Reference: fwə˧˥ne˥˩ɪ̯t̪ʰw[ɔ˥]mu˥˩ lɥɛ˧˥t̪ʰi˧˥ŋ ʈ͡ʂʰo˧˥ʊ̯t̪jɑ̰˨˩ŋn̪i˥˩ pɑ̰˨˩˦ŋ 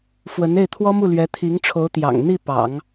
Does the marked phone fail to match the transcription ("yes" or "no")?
no